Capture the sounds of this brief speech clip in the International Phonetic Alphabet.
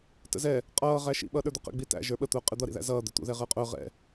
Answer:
t ə̰ z ɛ | qʼ ʌː ʁ æ ʃ ḭ ɓ ʌː ɗ ə˞ d̪ ə q ɛ̰ ɡ͡b i t æ̰ ʒ ə˞ ɓ ə t̪ ʊː qʼ ɪ d̪ ʌ ɾ ḭ ð æ̰ z ʌː d̪ ɛ t̪ ṵ ð ɛ ʁ əː qʼ ʊː ʁ ɛ̰

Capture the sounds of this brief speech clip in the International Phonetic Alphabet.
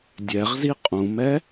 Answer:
dʲ ɛ ʁ z i qʼ ũ m ɛ

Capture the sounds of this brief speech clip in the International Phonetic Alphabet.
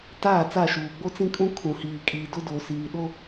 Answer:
t aː˦˨ t͡s a˦˨ ʃ uː˨ ɡ͡b o˦ t͡s ĩ˦ kʼ ũ˦ kʰ ũ˨ h iː˨ kʼ iː˨ d ʊ˦ d oː˨ s iː˨ ɗ o˦

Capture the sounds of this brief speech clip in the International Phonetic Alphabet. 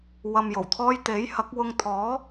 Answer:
w ɐ˧ m j o˨˩ w t̪ʰ ɔː˥ j t̪ e˨˥ j h ɐ˨˥ k̚ w ʊ˧ ŋ t̪ʰ ɔː˨˥

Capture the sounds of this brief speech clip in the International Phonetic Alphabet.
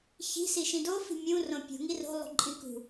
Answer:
ç i̤ s i ʃ ĩ d o f i̤ mʲ ũ r õ pʲ ṳ ŋ i r o̤ lˠ ṳ ǃʼ ĩ k ṳ

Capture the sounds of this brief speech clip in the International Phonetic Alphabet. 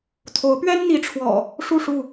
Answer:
t̪ʰ o˨˦ ʊ̯ p ɥ ɛ˦ n n̪ i˨˦ ʈ͡ʂʰ w ɔ̰˨˩ | ʂ u˥˨ ʂ u˥˨

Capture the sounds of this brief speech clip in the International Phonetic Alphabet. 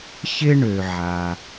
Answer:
ç ɪ˥ ɳ ø˩ ʕ a˩

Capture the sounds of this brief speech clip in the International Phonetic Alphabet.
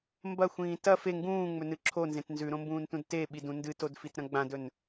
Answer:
m b ɐ xʷ ĩː t ɐ f e ŋ ɡ ũː ŋ͡m ɵ n ɨ ǁʰ o n z ẽ t n z ʉ ɾ õ m b ũː n t ũ d t e ɓ i d ũ n d ɨ t o d f i t ɾ ɐ̃ ɡ͡b ã d ɵ n

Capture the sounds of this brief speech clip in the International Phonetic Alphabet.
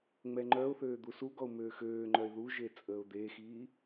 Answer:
ŋ͡m ɛ ŋ͡ǃ œ ʊ̯ θ øː d̪ u s u ɡ ɔ ʊ̯ m øː x øː ŋ͡ǃ œ ɪ̯ ð u ʒ e t͡sʼ əː ʊ̯ d̪ eː x iː

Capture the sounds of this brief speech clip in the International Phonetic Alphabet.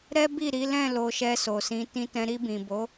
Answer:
ɾ ɛ˦ b i˦˨ ɾ i˨˦ l ɛ̃˦˨ l o˧ ʃ ɛ˧ s o˨ s ĩ˨˦ t ĩ˧ t ɛ̃˧ ɾ i˧ b ĩ˨ b o˨˦

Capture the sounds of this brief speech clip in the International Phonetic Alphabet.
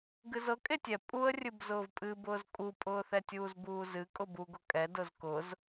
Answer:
ɡ ɨ z ɤ kʼ e tʲ ɛ pʼ u ə̯ rʲ ɨ b z ʊː v pʼ ɨ b ʊː z kʼ u pʼ ʊː θ ɛ tʲ uː z b uː z ɨ kʼ ʊ b u ɡ ʊ kʼ ɛ d ʊ z k ʊ z

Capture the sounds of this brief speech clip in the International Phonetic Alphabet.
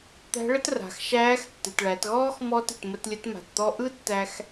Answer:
t̪ æ̤˧˥ ɭ ə˥ t r a̤˩˧ x ʃ æː˧˥ x tː ɨ˩ t ɭ æ˩˧ t ɣ ɔː˥ x m ɔ˧˥ t ɨ˩ t m ə˧ t lʲ ə˧˥ t m a̤˩ t t̪ ɔ˧ ʔ ɯ˥ tː æ˧ x

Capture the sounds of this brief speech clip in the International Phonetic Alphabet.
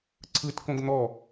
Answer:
ǀʰ ɯ t k õ ɡ n̪ ɔ

